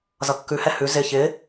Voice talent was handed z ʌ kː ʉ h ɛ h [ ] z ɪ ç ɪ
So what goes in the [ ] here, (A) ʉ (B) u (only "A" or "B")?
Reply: A